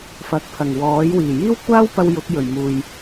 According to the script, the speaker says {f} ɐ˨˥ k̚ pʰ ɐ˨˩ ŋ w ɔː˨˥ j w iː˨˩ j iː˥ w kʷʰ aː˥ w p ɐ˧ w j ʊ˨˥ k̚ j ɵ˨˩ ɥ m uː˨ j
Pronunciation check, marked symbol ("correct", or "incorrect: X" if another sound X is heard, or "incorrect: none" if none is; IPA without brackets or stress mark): correct